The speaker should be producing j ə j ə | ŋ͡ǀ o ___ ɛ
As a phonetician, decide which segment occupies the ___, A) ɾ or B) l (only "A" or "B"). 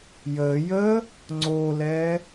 B